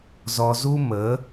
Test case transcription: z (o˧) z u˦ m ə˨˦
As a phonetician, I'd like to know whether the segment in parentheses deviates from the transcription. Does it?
yes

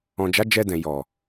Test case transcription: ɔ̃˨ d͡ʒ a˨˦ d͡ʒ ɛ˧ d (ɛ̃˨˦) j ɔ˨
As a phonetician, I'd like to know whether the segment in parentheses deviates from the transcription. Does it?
yes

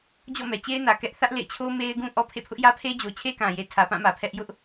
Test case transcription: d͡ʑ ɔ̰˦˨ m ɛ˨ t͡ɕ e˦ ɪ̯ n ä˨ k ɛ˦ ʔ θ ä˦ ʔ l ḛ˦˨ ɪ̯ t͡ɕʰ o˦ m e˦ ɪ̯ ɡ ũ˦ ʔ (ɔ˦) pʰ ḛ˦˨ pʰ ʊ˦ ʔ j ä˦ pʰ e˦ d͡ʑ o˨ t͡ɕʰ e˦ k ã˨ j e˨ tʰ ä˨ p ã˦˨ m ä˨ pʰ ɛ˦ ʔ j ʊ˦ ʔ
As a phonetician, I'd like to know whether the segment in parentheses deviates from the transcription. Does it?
no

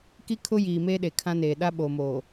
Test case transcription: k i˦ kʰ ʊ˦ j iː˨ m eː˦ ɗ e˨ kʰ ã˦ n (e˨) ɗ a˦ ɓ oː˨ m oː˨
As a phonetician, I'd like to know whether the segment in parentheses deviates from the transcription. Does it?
yes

